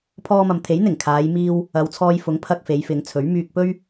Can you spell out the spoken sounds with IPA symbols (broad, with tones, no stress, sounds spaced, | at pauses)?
pʰ ɔː˧ m ɐ˨ m t̪ʰ e˨˥ j n̪ ɪ˨˩ ŋ kʰ aː˨˧ j m iː˧ w | ɐ˨˧ w t͡sʰ ɔː˧ j f ʊ˨˥ ŋ pʰ ɐ˧ k̚ f e˨˧ j f ɪ˨˧ ŋ t͡sʰ ɵ˨˥ ɥ m yː˧ k̚ p ɵ˥ ɥ